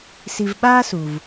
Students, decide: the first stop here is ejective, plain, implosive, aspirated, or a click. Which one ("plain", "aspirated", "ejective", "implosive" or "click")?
implosive